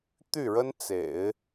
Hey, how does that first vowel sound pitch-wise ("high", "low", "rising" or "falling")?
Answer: falling